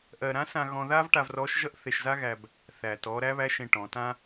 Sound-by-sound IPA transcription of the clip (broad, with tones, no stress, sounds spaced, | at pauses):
ʔ ɜ˧ ɾ ã˧˥ s ã˧ ɣ ɔ̃˧ ð a˥ v ʈ a˧ v r ɔ˧˥ ʃ ʒ ʌ˥ ʔ θ e˧ ʃ z a˥ ɣ æ˧ b | θ æ˩ t ɔ˩˧ ɾ æ˧˥ β æ˧˥ ʃ ẽ˧ ʈ ɔ̃˩˧ t ã˥